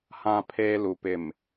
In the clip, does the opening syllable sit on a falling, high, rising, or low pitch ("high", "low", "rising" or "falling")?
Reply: low